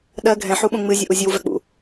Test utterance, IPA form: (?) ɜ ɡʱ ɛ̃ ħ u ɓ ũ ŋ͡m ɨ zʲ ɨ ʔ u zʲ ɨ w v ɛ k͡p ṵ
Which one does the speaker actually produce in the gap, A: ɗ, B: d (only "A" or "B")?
A